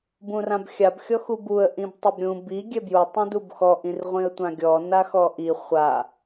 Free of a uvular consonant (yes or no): no